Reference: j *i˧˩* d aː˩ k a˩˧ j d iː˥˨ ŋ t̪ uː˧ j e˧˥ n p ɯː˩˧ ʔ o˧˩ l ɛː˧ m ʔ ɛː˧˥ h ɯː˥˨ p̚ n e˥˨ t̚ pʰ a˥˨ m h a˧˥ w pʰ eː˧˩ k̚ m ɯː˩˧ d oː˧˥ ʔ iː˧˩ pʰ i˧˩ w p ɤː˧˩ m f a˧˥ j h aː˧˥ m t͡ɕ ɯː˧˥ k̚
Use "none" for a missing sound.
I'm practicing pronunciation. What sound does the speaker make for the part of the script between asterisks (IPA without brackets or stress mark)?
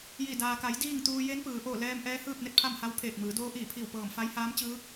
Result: i˧˩